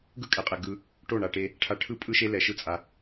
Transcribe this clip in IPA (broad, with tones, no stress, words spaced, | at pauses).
ɡɯ˦kʼɛ˨qʼɛ˨ ɡɯ˧ | ʈo˦˨ɳa˨ʈe˧ | ʈʰa˧ʈʰɯ˦pʼɯ˦ʃe˦ lɛ˧ʃɯ˦t͡sʼa˧